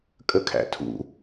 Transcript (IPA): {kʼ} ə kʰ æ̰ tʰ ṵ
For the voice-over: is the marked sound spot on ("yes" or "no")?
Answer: yes